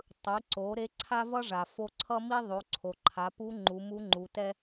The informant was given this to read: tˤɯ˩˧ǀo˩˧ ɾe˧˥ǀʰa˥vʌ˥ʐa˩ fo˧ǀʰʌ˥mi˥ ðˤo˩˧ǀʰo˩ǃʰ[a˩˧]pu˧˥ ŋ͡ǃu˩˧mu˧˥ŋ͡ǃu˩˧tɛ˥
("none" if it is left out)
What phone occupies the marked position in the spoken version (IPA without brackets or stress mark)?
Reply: a˩˧